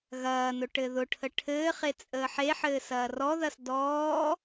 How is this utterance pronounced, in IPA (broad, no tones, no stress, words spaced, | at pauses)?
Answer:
ɣɐːnʊ ʈɘðʊʈʰə ʈʰɘːχe t͡sʼəːħeħɘː sɐːrɔðɐs dɔː